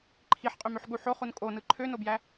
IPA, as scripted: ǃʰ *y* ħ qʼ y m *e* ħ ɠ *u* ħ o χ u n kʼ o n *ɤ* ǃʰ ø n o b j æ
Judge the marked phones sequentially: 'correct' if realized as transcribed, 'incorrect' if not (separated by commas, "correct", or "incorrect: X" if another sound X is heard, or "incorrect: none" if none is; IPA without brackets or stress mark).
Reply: incorrect: i, incorrect: ø, correct, incorrect: ɯ